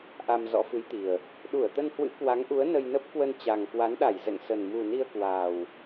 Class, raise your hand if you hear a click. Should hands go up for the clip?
no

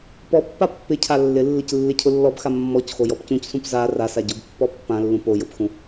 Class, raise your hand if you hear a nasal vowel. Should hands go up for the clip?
yes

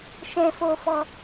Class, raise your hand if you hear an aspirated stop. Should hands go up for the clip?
no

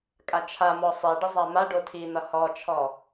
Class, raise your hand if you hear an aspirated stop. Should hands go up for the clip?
yes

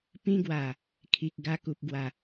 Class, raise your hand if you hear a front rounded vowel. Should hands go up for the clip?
no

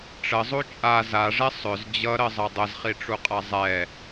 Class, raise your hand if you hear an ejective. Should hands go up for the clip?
yes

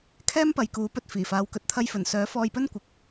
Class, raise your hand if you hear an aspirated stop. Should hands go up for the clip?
yes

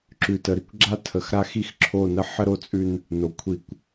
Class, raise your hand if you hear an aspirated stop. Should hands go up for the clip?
yes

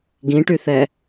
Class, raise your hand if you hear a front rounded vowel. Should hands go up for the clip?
yes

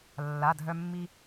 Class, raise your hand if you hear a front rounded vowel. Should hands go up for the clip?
yes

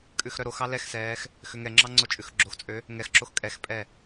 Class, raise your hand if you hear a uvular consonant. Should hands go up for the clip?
no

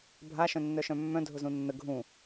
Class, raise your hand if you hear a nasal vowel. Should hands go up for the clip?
yes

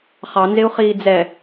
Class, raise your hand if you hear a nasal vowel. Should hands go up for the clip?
no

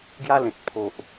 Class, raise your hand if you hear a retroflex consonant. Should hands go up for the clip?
no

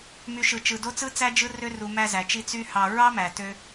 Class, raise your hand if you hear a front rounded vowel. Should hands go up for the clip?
yes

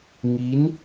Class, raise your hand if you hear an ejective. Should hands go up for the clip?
no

